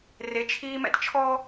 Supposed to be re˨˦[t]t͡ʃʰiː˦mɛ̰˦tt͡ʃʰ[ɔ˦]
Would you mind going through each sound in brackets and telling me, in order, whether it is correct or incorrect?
incorrect, correct

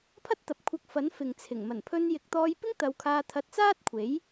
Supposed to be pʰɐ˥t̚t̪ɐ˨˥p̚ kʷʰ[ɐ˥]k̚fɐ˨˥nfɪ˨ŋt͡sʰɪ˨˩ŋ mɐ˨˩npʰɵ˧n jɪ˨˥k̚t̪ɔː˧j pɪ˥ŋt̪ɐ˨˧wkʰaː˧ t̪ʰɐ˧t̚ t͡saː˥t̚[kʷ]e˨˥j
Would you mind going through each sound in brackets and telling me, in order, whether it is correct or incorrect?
incorrect, incorrect

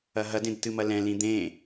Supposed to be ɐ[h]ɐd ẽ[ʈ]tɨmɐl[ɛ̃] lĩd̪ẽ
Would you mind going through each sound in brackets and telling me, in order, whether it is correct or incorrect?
incorrect, incorrect, correct

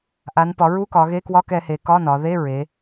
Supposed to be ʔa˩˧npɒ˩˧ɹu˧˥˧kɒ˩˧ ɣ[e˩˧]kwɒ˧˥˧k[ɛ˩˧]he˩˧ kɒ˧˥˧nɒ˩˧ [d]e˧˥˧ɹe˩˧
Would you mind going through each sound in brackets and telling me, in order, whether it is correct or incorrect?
incorrect, correct, incorrect

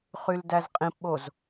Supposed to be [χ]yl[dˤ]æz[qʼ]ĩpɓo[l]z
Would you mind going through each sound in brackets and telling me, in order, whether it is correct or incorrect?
correct, incorrect, correct, incorrect

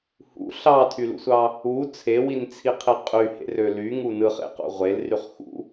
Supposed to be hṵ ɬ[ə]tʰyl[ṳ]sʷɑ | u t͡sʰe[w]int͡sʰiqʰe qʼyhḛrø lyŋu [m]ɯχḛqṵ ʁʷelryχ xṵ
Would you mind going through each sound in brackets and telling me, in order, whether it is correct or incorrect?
incorrect, incorrect, correct, incorrect

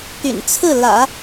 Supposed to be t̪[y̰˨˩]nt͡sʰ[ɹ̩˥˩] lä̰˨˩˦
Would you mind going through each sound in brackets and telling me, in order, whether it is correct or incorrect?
correct, correct

